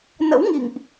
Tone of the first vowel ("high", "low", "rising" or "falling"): rising